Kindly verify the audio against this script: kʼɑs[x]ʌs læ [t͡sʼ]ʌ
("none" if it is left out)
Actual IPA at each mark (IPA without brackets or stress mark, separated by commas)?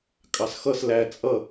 x, t͡sʼ